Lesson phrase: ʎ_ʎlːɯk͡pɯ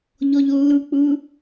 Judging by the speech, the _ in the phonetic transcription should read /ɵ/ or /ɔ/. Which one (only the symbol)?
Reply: ɔ